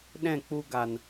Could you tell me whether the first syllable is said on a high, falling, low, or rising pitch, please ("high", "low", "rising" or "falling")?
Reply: falling